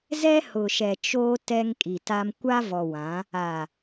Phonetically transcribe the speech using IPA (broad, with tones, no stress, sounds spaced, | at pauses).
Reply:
z ɛ˦ h ʊ˨ ʃ ɛ˨ t͡ʃ oː˦ t ɛ˦ ŋ kʼ i˨ t a˦ m kʷ a˦ v ɔ˨ w ã˨˦ | a˨